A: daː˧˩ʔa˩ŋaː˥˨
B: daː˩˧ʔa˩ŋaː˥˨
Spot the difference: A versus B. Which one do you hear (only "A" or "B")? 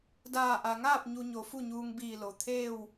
A